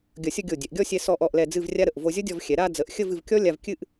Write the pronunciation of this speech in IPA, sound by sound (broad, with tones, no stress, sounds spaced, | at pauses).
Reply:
ɡʲ ʌ˧˩ sʲ ʌ˥˧ ɡʲ o˧˩ dʲ ɛ˩˧ ʔ ɡʲ ɔ˥˧ sʲ ɛ˧ s ɔ˧ ʔ ɔ˧˩ ʔ l ɛ˧˩ d͡z ɨ˥˧ v rʲ a˥ ɾ ə˧˩ ʔ v o˧ zʲ ʌ˥ dʲ ɔ˧ v xʲ ɛ˩˧ ɾ a˥˧ d͡z ə˩˧ ʔ xʲ ə˥˧ v ɨ˩˧ v kʲ ɔ˥ lʲ a˧ v kʲ ɨ˥˧ ʔ